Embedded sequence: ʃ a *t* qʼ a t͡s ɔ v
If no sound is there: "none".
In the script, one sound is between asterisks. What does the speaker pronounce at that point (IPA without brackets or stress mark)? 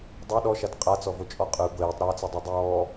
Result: t